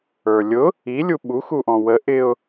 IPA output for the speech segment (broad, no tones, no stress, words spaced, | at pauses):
ə˞lʲʊ | i lʲuɓu xuʔɔ̃wə ʔɪʊ̯